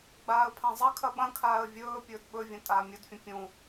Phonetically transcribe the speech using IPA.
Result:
ɡ͡baːə̯pʰãzˤɐkʰɐ ɓɐ̃kʰaːə̯ vʲɵː pʲɵːdɓɵvʲɐ̃ tʼaːmʲɵdfʲɐ̃ pʲũ

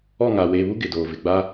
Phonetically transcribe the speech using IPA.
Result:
ɔ˦˨ŋaː˨weː˨βu˦ ɡɪ˨doː˨vɪ˨ ɡ͡ba˦

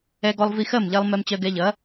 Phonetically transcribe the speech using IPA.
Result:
ɛ˧ɡɔ˧lˠ vi˧xɜ˥˩mʎɛ˧lˠ mɛ˧mt͡ɕɜ˧ɡɛ˧ʎɐ˩˥

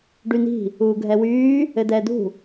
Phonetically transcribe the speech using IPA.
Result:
ɖyni̤ | uːɡʱɛwyː | ɘdɛːdṳ

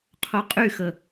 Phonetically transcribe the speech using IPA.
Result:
qʰoqʼyxə

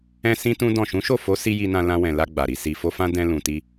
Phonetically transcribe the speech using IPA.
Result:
ɛ̃˧ sĩ˦tũ˦dɔ̃˦˨ ʃũ˨˦ʃo˦˨fo˨˦si˧ ji˧nã˧ lã˧wɛ̃˨la˧ ɡ͡ba˨ɾi˧ si˨fo˧ fã˦ dɛ̃˧lũ˨ti˧

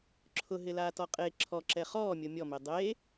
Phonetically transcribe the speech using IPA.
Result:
ǁʰʊɦɪlaːtɔ qʼe ǁʰɔǁɛ χɔːmʲo mʲɔme dˤe

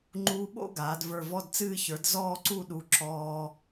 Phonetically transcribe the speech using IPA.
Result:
ŋ͡ǃuː˧ɓo̰˥˧ɡaː˩˧d və˞˧˩vɔ˥˧dt͡sɨː˥˧ çə˞˩˧d zɔː˥˧ǀu˥˧ ɗu˧˩ ǁɔː˧

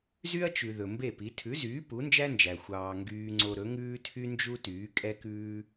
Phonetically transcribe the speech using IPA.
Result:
zy˥ɐ̯t͡ʃʉ˩ ðɵ˩mbe˥˩pi˩˥ tʰʉ˩˥zyː˩˥ pu˩˥nd͡ʒæ˥nd͡ʒæ˩ xʷɑː˧ŋɡyː˥ŋ͡ǀo˥ ɾɵ˩˥ŋʉː˥tʰy˥nd͡ʒu˥ tyː˩˥kʼɛ˥kʉː˥

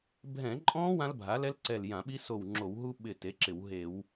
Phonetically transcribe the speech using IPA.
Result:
bʱɛ̃˧˩˧ǃʼɔ̃˦˥ wã˦˥lbʱa˩˥lɛ˦˥lǀɛ˧˩l jã˧˩˧ɓi˦˥ so˧˩w ŋ͡ǁo˧˩˧wɦu˦˥ ɓɪ˧˩ te˩˥ǁɪ˧˩˧w ɦe˧˩˧w

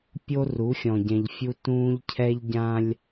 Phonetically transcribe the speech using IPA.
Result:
pʲo˦ ru˨˦xʲɔ̃˨ɟɛ̃˨ʎfʲu˦ tũː˦ʎcʰɛ˦ʎ ɟã˦lʲ

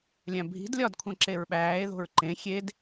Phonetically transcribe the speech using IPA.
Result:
lʲæ̃bʱi̤d lʲɒdkʷʰæ̃ ǁeɹɓæːe̯ ðo̤ɹǃẽ xʲed

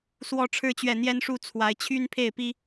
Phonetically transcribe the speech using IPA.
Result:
swɔ˨˦ʈ͡ʂʰɻ̩˨˦t͡ɕɥɛ˨˩ n̪jɛ˦nʂu˥˨ t͡sʰwa˨˦ɪ̯t͡ɕʰy˦n pʰe˥˨ɪ̯pi˦

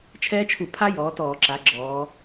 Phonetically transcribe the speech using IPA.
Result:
t͡ʃʰɛː˦˥t͡ʃʰu˧˩˧pʰa˦˥jɔː˩˧ tɔː˧˩˧ǁa˩˧ ɡ͡ǁɔː˩˧

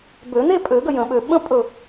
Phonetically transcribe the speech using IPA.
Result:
bø˨˩˦n̪e˥˧pʼø˨˩˦ɡə˥˩ jə̃˨˩˦ɓø˨ ɓə̃˥ pʼɵ˥˩

